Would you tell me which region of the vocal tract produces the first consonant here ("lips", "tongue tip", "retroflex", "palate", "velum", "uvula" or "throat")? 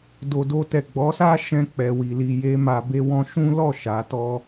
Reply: tongue tip